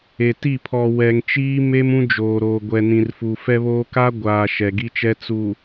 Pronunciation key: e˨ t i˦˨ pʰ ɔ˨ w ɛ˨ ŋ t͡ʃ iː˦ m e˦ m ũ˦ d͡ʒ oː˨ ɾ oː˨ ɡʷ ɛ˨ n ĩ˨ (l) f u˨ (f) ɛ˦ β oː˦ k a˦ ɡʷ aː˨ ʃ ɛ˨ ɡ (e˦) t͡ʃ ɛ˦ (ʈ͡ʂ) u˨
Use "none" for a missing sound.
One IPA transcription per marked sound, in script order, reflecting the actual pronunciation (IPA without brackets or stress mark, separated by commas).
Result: r, f, i˦, t͡s